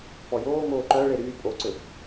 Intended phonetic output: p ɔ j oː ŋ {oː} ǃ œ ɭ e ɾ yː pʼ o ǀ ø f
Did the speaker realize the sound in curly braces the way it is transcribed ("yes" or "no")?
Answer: yes